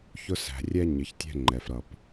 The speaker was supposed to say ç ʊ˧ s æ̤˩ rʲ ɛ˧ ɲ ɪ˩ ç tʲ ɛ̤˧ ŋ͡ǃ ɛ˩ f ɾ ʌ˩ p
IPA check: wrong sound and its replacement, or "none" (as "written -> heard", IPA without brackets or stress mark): none